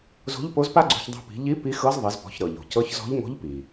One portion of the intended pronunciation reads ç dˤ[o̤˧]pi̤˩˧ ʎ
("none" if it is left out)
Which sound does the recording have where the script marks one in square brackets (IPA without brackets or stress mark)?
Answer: o̤˧